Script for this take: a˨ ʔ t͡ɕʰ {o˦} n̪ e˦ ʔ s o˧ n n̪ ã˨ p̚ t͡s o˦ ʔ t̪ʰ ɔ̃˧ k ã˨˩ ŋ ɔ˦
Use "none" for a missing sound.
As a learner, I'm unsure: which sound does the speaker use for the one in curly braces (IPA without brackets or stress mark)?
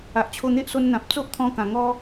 o˧